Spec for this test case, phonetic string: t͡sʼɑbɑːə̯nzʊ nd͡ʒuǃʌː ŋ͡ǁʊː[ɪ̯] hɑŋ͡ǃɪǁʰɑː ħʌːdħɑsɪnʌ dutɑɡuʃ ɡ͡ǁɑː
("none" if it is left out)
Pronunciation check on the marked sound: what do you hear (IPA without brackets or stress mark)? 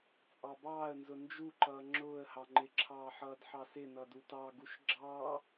ə̯